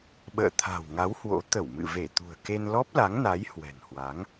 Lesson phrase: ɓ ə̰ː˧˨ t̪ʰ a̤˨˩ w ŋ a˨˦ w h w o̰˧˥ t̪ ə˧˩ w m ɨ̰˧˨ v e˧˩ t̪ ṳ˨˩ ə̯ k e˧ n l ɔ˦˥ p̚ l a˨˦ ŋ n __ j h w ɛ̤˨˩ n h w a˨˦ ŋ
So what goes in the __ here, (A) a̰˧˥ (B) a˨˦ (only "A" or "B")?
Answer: B